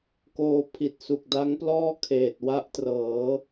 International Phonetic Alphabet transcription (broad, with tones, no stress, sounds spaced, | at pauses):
k oː˧ pʰ i˨˩ t̚ s u˨˩ k̚ d a˦˥ ŋ p l ɔː˥˩ kʰ eː˨˩ t̚ w a˦˥ ʔ t r ɤː˩˦